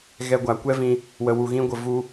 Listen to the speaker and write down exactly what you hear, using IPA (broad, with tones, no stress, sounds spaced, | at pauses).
ɣ ɛ˧ ɡʷ a˨ kʷ ɛ˦ v ĩ˧ | w ə˨ w u˨ ɣ ĩ˧ ɡʷ ə˨ v u˦